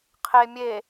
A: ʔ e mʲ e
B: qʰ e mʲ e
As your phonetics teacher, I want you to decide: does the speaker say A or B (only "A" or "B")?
B